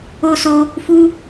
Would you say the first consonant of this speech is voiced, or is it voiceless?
voiceless